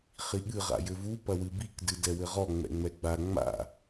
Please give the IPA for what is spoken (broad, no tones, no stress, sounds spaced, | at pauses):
χ i ɠ ɨ ʁ a̰ j ɘ v u p ɐ w ɨ b i k d ɨ d ɛ w ɘ ʁ ɔ ŋ͡m ɛ̰ ŋ͡m ɛ ɡ͡b a ŋ͡m a̰